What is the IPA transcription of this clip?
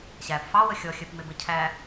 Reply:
ɕ æ p f ɑ w ə xʲ ɔ xʲ ɜ p m ɪ b ə cʰ æ

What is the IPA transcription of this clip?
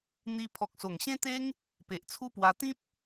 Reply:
n̪ i˧ pʰ ɔ˨ k̚ s o˨˩ ŋ ɕ ẽ˦ t̪ e˦ ŋ | p e˨ ʔ t͡sʰ u˦ p w a˧ t̪ ĩ˦ p̚

